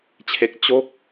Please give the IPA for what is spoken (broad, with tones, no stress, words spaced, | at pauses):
t͡ɕʰe˦˥k̚ t͡ɕo˥˩k̚